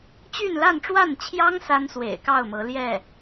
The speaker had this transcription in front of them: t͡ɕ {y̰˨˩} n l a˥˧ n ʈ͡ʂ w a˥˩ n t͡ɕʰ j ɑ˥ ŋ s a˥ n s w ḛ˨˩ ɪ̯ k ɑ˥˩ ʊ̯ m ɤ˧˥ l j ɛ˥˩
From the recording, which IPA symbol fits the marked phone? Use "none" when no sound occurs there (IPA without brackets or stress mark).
y˥˧